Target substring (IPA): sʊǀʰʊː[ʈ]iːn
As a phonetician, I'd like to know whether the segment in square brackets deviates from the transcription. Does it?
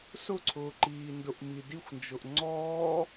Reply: yes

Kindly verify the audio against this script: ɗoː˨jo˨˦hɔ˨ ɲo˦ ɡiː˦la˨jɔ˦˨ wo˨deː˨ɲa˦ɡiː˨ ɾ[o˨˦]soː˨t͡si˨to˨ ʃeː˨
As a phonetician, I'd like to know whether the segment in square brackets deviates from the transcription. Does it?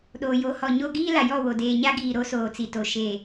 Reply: no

